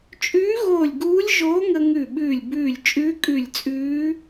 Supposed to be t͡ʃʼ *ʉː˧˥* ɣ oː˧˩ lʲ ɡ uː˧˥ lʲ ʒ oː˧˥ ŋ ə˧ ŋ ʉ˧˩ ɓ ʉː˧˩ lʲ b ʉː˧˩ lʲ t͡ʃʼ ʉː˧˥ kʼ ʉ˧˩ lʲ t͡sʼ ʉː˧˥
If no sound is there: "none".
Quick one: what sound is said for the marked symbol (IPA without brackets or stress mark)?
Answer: ʉː˧˥